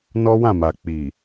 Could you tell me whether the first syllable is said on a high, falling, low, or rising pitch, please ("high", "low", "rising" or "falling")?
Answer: high